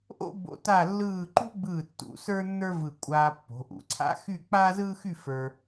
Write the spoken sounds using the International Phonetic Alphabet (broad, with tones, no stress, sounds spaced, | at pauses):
ʔ o̰˥ b o̰˧ t a˥˧ lː ɯː˥˧ ǃ ṳ˥ ɡ͡b ɯː˧˩ tː ṵ˩˧ s ə˞˥ nː ə˞˥ v ɯ˧˩ kʷʼ aː˧ pː o̤˩˧ ʔ ṵ˩˧ ǀʰ a̰˥ x y˥˧ k͡p aː˥ z ɯː˥ x y˥˧ f ə˞˧